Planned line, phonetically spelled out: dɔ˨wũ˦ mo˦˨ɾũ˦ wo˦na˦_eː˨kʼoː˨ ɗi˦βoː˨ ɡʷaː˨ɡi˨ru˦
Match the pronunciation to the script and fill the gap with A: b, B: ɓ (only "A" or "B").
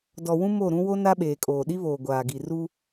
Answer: B